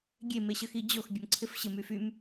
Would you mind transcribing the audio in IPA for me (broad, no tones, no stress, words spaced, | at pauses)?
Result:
ɡʲemeɕəxi d͡ʑox bʲəmǀʰɪf ɕɪmy fym